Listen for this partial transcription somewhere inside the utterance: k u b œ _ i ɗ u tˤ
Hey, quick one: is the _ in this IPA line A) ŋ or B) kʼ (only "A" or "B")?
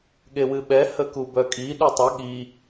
B